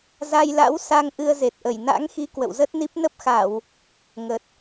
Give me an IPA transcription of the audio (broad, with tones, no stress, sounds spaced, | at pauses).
z a˧ j l a̰˧˥ w s a˧ ŋ ʔ ɨ˧ ə̯ z e˨˩ t̚ ʔ ə˧˩ j n a̰˧˥ ŋ x i˨˦ k w ə̰˧˨ w z ə˦˥ t̚ n i˦˥ p̚ n ə˦˥ p̚ x a˧˩˨ w | ŋ ə˨˩ t̚